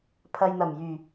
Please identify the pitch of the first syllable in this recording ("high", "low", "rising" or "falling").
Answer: low